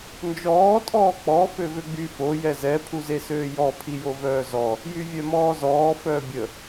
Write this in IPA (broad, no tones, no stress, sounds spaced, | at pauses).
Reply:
n d͡ʒ ɔː tʼ ɔː k͡p ɔ f ø v ø ɡ͡b y f o j ɛ z ɛ pʰ u z e s øː j ɔ pʰ i j o v œː z ɔ | j y vʲ œ m ɔː z ɔː f œː bʲ ə